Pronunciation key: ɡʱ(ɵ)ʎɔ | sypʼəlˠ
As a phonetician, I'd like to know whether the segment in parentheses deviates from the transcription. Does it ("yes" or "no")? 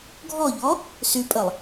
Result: yes